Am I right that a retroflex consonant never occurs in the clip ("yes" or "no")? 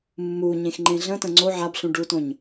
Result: no